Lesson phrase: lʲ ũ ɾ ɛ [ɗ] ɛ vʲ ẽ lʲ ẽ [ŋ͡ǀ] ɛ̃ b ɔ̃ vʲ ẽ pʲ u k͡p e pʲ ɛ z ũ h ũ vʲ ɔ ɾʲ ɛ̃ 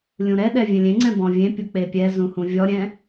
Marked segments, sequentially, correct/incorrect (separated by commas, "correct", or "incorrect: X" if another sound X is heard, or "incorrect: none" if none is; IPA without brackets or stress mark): correct, correct